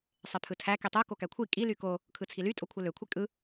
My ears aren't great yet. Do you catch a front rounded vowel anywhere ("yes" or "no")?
yes